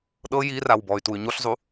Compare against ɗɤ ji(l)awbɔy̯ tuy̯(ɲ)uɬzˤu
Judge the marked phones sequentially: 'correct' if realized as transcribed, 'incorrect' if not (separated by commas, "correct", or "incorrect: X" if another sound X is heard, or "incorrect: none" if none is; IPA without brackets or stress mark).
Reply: incorrect: r, correct